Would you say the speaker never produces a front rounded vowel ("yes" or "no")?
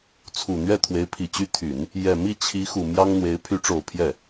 no